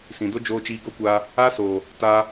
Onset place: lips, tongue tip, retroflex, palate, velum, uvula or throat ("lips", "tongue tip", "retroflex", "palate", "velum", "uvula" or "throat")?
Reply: tongue tip